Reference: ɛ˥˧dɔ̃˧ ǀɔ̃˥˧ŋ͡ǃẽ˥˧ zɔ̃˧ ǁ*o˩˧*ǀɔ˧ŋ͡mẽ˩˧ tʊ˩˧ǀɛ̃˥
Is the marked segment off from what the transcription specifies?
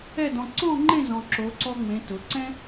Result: no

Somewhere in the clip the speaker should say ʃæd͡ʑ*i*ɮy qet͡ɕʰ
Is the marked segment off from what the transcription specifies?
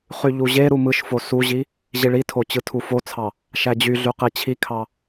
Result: yes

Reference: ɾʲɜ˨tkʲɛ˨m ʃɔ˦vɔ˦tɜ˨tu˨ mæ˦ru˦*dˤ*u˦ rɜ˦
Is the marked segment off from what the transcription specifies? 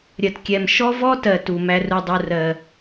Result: no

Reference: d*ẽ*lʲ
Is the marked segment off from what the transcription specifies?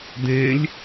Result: no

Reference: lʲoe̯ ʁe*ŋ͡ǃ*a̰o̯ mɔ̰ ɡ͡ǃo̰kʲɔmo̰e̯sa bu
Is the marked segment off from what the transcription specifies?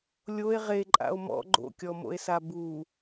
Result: yes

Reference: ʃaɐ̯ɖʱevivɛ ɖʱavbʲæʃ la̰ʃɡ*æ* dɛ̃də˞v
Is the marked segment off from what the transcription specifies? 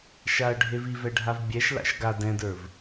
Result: yes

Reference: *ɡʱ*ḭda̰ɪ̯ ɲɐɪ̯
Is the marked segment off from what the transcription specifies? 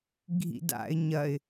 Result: no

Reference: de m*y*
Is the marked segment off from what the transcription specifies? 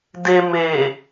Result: yes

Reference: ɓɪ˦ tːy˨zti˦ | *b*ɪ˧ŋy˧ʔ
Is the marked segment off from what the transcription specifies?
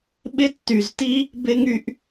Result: no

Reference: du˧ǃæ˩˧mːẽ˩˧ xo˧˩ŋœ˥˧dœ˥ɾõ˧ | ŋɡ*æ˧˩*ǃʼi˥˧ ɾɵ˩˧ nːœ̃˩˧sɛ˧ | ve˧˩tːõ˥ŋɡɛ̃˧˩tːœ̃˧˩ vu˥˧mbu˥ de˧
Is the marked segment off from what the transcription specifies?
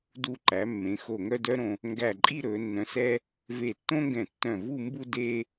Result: no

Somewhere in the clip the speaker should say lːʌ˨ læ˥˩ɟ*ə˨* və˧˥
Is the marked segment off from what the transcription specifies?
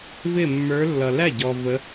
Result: yes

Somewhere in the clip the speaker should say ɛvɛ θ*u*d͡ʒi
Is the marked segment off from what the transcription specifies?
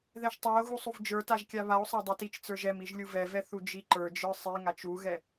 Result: no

